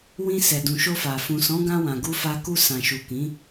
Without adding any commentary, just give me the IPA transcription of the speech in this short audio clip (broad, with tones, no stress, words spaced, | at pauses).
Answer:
wĩ˧sɛ˨ dũ˨ʃo˧fa˨ fũ˨sɔ̃˨˦ɡã˧ wã˨ɡu˧fa˧ ku˧sã˨ʃu˨ kĩ˨˦